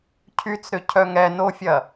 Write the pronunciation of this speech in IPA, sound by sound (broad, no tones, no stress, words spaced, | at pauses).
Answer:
cʰyt͡sɾʏ cʰœŋɛnofʲɐ